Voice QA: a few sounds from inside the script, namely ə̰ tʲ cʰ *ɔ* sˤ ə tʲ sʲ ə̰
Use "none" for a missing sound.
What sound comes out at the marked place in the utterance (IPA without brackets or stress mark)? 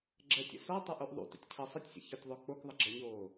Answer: ɤ